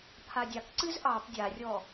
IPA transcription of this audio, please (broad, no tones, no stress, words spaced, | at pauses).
pʰadʲakǀɨz ʔɑp dʲarʲɔ